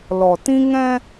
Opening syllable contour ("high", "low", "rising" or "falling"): low